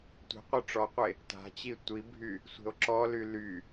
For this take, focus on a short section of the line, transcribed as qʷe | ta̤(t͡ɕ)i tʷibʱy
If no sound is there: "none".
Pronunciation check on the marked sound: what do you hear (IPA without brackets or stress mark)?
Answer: t͡ɕ